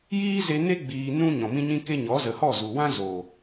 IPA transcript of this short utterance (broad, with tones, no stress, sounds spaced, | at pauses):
j iː˦ z e˧ n e˦ ɡ͡b iː˧ n ũ˦ ɲ ɔ̃˨ m ĩ˦ ɲ ĩ˦ k e˦ ɲ ɔ˨˦ z ə˨ h ɔ˦˨ z u˨ w ã˦ z o˨